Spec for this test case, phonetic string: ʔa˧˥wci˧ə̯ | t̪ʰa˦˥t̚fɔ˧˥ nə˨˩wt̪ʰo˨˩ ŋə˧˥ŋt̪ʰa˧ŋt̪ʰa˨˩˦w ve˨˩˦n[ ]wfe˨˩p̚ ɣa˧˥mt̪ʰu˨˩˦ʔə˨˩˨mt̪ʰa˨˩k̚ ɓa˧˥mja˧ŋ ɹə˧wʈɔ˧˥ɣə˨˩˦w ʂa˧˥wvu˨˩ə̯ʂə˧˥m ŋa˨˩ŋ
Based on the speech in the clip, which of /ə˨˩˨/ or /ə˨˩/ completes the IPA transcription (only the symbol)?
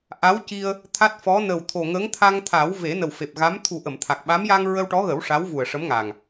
ə˨˩